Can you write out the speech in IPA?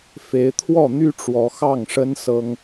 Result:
f e˨˦ ɪ̯ t̪ʰ w ɔ˥˨ n̪ y˦ ʈ͡ʂ w ɔ˨˦ x ɑ˥˨ ŋ ʂ ə˦ n s ɤ˦ ŋ

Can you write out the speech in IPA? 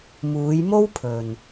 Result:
m uː˨˧ j m o˥ w pʰ ɵ˨ n

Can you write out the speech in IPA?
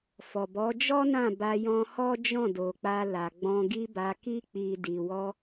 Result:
f ɔ˨ b ɔ˨˦ d͡ʒ ɔ˦ n ã˦˨ b a˧ j ɔ̃˧ h ɔ˦ d͡ʒ ɔ̃˦˨ d o˨ k͡p a˧ l a˨ ɡ͡b ɔ̃˧ ɡ i˦ b a˧ k i˧ k͡p i˨ d i˨ w ɔ˧

